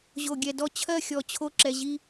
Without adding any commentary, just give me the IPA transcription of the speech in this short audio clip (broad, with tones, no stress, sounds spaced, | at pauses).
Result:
ʑ o˨ ɡʲ ɛ˨ d ɔ˧ t͡ɕʰ ɜ˦˨ xʲ ɔ˨ t͡ɕʰ o˧ ǁ ɛ˨ ʑ i˧